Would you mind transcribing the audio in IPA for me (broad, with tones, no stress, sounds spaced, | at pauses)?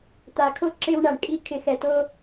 t̪ a˨ kʰ o˦ ǁ e˦ w ɳ a˨ ɳ kʼ i˦ kʰ ɪ˨ x ɛ˨ t o˦